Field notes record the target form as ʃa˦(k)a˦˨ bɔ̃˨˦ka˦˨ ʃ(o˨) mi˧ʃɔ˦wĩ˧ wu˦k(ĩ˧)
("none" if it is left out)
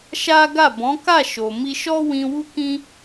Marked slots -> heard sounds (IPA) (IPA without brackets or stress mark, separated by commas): ɡ, o˨, ĩ˦